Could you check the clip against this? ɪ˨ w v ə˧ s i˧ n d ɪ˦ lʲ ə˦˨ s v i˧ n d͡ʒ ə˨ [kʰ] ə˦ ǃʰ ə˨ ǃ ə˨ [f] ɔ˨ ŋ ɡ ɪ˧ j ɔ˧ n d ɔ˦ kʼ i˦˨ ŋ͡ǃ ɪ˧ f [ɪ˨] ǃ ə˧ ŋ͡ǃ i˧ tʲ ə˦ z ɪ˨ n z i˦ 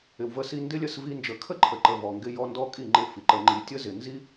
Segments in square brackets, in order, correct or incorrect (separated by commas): correct, incorrect, incorrect